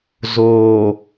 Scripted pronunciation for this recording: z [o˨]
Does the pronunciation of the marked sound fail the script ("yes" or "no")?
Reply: yes